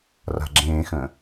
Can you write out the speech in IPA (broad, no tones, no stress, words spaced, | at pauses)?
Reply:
ra̤ɡ͡ǁẽːxə̃ː